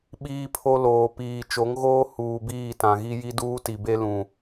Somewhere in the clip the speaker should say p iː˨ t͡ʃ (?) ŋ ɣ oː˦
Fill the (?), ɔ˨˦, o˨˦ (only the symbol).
o˨˦